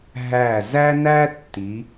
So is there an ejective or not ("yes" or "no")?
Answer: no